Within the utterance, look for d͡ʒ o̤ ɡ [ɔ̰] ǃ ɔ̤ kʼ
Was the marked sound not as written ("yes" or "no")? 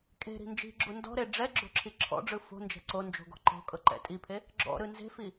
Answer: yes